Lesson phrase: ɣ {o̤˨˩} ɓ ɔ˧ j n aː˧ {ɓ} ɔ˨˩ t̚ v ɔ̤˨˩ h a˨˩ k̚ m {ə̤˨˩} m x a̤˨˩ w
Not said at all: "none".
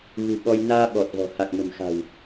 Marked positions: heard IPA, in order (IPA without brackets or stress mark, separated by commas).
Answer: ṳ˨˩, ɓ, ə̤˨˩